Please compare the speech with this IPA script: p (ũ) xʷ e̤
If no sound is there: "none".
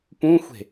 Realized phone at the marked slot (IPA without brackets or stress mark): ũ